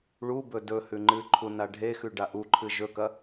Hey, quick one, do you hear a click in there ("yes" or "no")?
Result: yes